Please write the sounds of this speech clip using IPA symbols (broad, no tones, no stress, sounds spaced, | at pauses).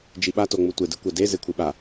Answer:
d͡ʒ i ɓ a t o ŋ͡m u tʷ e d ɨ kʷ ɛ d e z e kʷʰ i ɓ a